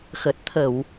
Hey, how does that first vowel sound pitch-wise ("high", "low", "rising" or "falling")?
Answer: low